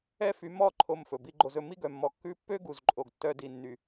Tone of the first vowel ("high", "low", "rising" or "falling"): high